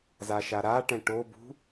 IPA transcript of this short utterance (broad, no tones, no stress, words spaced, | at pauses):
zaʃaɾaʈɛ̃ ʈobṳ